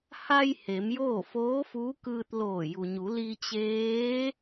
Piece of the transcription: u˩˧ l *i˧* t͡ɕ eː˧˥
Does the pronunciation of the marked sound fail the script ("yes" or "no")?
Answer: no